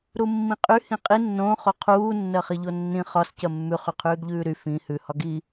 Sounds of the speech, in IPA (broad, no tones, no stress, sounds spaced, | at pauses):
ɾ u mː ĩ qʼ y h ĩ qʼ i nː õ χ o qʰ uː nː ɜ χ i ʎ o nː ĩ χ ɒ s c ɜ mː ʉ χ y qʰ ʉː ɡ ʎ ʉː ɾ y f ĩ h ʉ h ɒ ɡ i